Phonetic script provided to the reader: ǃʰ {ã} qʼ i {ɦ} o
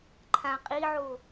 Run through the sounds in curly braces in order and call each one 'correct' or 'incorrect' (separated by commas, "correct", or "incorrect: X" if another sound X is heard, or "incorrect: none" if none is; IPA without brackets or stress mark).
correct, incorrect: ʕ